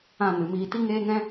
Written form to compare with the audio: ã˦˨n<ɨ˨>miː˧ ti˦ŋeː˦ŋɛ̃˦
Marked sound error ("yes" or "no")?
no